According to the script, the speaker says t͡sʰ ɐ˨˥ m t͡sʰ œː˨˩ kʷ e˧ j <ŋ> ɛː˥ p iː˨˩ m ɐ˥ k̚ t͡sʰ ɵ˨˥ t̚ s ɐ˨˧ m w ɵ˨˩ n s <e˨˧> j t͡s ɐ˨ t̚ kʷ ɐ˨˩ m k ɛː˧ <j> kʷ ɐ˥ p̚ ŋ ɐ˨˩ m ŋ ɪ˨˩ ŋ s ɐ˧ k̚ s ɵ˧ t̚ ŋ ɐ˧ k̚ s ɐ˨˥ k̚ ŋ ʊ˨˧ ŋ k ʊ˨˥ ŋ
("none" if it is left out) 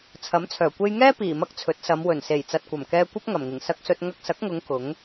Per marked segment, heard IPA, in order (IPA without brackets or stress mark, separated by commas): ŋ, e˨˩, none